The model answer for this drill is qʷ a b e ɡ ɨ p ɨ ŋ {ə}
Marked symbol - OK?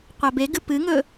no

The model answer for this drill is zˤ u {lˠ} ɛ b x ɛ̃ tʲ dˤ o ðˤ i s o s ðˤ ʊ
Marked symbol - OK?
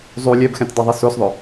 no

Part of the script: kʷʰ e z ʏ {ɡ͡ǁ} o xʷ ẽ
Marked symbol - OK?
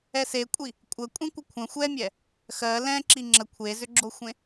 yes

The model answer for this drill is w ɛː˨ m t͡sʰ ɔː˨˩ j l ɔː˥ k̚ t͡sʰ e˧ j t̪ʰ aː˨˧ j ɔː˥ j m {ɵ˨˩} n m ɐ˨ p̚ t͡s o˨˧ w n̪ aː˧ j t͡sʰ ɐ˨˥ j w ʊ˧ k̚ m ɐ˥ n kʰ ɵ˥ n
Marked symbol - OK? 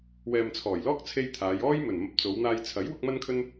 yes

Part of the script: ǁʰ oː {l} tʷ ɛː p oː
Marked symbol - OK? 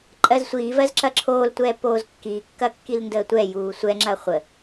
yes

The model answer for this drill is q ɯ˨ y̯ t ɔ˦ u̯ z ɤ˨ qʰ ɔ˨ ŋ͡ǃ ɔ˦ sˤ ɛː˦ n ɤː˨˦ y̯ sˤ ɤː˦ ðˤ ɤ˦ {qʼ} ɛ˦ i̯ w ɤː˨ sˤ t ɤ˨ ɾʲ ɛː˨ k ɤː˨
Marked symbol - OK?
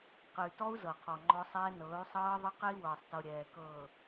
no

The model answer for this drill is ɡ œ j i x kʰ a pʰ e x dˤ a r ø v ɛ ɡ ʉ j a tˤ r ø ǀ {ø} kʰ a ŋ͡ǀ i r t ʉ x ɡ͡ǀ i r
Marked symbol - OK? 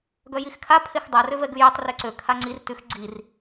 yes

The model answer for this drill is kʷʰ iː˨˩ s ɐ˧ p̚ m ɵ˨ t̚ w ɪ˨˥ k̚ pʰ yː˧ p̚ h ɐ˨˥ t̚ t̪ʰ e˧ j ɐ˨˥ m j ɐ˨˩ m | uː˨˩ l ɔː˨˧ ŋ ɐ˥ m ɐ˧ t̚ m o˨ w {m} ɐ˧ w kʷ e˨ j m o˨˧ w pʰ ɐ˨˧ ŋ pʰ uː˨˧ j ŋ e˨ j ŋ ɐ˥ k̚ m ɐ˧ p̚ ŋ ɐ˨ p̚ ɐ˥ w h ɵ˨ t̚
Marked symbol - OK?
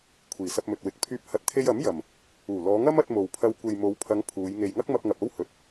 no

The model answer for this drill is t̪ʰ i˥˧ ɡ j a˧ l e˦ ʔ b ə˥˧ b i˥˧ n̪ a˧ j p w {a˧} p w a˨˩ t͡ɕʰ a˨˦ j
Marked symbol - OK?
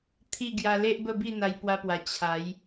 yes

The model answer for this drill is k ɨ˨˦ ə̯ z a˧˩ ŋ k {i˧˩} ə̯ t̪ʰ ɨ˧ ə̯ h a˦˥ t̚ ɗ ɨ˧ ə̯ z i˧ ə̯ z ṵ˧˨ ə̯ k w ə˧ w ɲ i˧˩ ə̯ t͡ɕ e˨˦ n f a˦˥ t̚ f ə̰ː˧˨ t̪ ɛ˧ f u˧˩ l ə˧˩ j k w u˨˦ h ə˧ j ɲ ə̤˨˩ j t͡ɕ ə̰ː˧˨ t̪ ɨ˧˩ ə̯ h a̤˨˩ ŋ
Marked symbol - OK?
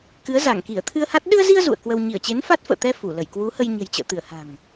yes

